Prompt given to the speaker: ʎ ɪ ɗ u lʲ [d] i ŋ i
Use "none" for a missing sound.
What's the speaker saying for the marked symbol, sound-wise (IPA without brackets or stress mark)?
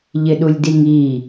d